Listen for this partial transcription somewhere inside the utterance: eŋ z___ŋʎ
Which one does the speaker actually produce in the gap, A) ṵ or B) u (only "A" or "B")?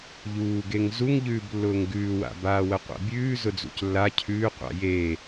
B